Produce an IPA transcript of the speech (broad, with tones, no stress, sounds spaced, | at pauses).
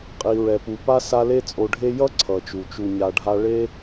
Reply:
qʼ i˩ ɹ ɛ˩ p u˩ p a˦ s a˦ l e˥ t͡sʼ o˨ ɖʱ e˥ j ʌ˥ ǀʰ ʌ˩ t͡ʃ u˩ t͡ʃ u˨ ɲ a˨ ɖʱ a˦ ɭ e˥